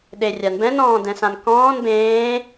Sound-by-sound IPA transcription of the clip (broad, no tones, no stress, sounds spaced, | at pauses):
ɗ e rʲ a n b ɛ̃ n ɔ̃ː d ɛ̃ s ã n k ɔ̃ː n b ẽː